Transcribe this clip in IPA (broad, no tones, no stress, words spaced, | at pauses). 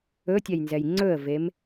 ɵtʲɛjnzɛj ŋ͡ǀɵə̯vem